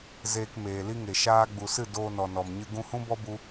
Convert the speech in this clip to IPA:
z eː˧ k m eː˨ l i˦ ŋ e˨ ʃ aː˧ ɡ͡b u˨ s ɨ˦˨ d oː˧ n ɔ˨ n ɔ˨ m ɲ ɨ˧ ɡ ũ˧ h ũ˦ b ɔ˦ b u˦

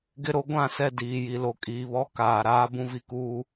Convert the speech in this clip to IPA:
ɡ ɪ˦ ɾ o˦ ɡʷ ã˦˨ s ɛ˦˨ d iː˨ j i˨ l o˨ kʼ iː˨ β ɔ˦ k aː˨ ɾ aː˦ b ũ˦ v i˨ k uː˦

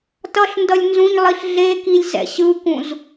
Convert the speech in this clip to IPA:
t ʌ ɬ n d ʌ lʲ n z ũ ɲ lˠ i ɬ ɮ e k i lʲ z ɛ̰ ɕ ɯ k ũ z

